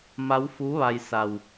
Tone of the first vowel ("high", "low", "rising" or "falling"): rising